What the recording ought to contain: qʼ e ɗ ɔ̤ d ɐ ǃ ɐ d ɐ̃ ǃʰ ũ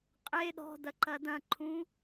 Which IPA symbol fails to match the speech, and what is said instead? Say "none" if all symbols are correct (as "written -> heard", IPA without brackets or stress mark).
none